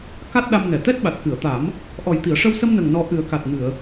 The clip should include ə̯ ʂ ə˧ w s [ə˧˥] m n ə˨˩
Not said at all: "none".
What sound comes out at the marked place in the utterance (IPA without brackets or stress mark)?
ə˧